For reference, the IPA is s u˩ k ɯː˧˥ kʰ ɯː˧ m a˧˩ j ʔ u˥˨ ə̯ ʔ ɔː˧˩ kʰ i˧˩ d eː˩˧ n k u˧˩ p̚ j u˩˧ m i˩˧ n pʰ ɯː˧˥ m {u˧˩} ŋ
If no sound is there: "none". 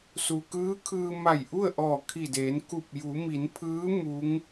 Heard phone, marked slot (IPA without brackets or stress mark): u˧˥